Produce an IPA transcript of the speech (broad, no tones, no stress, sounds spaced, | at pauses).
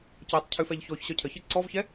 c œ tˤ cʰ ʉ f ɛ ʎ ç ɔ ç ɕ œ cʰ ə ç e ǀ ɔ v ç ɛ